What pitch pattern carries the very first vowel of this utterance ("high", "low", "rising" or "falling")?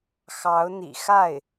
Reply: rising